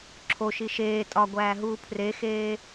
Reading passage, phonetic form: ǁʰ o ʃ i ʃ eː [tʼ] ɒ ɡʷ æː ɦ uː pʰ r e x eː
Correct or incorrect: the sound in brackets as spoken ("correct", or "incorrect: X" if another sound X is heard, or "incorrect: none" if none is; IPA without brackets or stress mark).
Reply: correct